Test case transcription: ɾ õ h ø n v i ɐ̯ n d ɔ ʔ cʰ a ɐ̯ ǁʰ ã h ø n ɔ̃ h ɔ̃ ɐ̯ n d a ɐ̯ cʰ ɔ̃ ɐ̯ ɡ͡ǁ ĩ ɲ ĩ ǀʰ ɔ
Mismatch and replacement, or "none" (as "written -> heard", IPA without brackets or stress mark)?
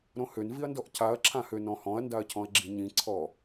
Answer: none